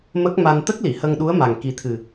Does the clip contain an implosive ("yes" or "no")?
yes